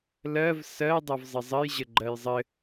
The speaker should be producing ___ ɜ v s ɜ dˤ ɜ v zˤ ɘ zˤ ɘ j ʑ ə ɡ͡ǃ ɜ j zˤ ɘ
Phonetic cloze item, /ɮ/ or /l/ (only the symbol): l